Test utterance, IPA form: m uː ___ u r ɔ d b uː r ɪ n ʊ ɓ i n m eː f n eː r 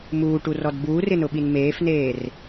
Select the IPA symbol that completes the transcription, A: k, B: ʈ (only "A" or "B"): B